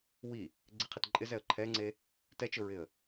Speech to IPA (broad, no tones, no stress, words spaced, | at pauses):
wi | ɡ͡ǀɪqʰit ǃʼɪzɛə̯ ǃʰɛŋ͡ǀe | tɛt͡ʃʊɹɪə̯